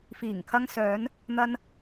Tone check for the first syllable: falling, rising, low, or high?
low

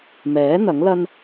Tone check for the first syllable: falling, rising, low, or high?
rising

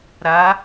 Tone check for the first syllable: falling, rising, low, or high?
rising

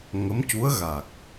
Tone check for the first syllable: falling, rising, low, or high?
rising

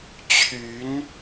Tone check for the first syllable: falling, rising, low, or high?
rising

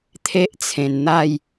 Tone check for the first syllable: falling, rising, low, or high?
high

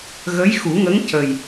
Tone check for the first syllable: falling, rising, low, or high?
rising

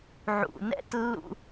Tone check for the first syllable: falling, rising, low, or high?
low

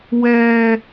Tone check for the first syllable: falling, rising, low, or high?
low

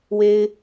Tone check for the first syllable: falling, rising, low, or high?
high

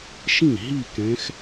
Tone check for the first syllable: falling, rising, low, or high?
falling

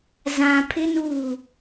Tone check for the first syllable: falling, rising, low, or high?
low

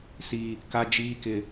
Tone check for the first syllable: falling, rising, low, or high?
low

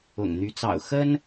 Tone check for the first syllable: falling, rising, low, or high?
low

